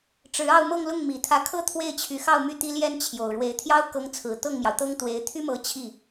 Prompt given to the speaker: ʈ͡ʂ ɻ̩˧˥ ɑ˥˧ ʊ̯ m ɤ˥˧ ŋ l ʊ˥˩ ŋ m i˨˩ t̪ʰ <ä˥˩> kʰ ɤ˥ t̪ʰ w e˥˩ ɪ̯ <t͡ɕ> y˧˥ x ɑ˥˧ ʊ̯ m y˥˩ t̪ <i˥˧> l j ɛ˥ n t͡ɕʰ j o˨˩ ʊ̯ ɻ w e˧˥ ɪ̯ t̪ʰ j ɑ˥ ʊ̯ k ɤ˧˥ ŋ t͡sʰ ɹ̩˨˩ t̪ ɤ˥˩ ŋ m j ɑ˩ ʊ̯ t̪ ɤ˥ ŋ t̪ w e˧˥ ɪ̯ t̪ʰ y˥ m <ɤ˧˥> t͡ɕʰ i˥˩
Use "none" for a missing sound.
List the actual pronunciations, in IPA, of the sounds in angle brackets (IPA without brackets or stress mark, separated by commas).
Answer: ä˧˥, t͡ɕʰ, i˥, ɤ˧˥